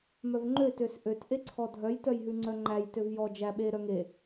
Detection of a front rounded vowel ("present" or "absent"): present